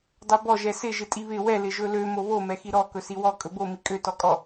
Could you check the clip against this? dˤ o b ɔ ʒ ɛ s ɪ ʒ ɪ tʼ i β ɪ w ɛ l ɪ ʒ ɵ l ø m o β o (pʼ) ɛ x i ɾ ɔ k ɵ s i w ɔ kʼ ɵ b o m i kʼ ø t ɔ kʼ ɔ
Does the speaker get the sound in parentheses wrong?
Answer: yes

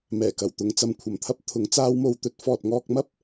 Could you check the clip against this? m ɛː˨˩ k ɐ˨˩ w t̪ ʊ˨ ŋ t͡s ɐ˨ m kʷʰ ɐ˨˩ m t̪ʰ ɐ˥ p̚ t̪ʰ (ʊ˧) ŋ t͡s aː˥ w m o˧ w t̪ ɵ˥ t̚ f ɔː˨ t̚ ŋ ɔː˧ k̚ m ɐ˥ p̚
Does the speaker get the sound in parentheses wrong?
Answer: yes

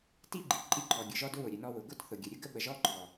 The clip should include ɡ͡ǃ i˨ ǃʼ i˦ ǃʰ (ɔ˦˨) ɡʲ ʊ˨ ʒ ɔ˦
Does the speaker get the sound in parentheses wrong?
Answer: yes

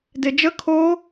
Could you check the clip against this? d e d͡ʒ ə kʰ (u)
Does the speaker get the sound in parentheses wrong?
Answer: yes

